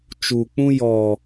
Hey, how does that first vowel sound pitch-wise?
low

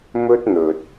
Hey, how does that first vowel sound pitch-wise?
high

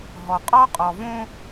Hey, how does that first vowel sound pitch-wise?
low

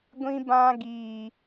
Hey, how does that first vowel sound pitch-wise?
high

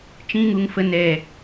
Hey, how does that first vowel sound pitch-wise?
high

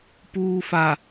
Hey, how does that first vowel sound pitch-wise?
low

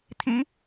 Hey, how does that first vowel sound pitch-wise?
rising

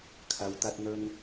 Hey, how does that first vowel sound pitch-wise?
low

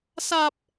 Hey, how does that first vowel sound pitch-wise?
high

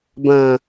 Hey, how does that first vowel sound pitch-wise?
low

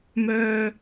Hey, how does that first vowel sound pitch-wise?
high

